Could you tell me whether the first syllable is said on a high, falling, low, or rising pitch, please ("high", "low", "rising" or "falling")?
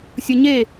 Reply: low